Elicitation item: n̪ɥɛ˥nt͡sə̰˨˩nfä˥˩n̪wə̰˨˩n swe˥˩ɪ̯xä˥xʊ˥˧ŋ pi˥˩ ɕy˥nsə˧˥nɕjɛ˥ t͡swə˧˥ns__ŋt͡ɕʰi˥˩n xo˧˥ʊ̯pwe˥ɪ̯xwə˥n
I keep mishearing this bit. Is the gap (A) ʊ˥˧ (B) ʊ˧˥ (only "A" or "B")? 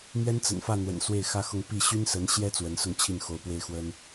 A